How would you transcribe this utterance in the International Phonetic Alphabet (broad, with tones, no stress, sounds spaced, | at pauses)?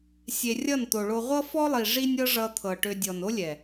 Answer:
sʲ e˧ rʲ ʌ˦˨ n t̪ o˨ ɭ o˧ ʁʷ ʌ˦ f ɔ˦ lˠ i˨ ʐ i˧ nʲ ɤ˦ ʐ ʌ˧ t̪ʰ ɤ˨ ʈ ø˧ dʲ ɔ˨ n o˦ lʲ ɛ˨